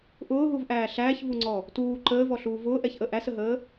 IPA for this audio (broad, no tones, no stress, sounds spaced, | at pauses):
ʔ ʊː ɦ u v ʔ æː ɬ æː ç v u ŋ͡ǀ ɔ | t uː ǃ əː v ɔ ɬ uː v ʊː ʔ ɛ ç ʔ ə ʔ æ s ə ɦ əː